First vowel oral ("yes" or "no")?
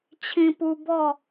no